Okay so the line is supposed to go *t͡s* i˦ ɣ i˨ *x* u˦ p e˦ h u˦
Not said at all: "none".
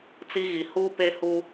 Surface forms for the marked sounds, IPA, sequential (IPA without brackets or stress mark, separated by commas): t͡s, h